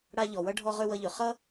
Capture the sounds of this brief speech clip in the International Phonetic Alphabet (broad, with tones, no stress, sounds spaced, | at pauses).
ɽ a˧ ʎ ɔ˩ w ʌ˧ ɖʱ ɔ˧ ʁ ø˧ w ʌ˧ ʎ ø˩ χ ʌ˥